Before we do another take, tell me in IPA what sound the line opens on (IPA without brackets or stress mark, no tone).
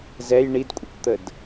z